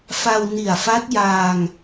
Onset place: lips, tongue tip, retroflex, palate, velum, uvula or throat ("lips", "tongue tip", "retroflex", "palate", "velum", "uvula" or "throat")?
lips